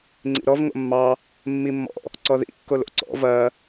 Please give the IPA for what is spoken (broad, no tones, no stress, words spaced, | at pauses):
ŋ͡ǀḭɾɔv ŋo̰mːɑ | mːimːɔ̰ | ǀɔðḭ kːolo̰ǀɔ̰ vɐ